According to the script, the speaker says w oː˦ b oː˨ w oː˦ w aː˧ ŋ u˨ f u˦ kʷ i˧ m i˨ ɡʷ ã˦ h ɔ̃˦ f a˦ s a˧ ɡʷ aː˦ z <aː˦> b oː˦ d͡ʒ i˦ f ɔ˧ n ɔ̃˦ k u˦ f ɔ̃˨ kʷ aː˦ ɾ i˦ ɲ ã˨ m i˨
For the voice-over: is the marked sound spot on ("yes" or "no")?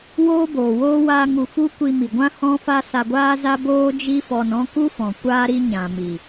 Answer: no